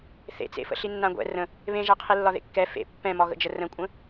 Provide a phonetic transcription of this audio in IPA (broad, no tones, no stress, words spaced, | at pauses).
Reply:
θḛt͡sḛfə̰ ɬinːãɡʷɛ̰ rə̃ | βẽʒa qʰilːɒðḛkːɛ fḛ pːɛ̃mɒɣə̰d͡ʒə rə̃kʷʼə̃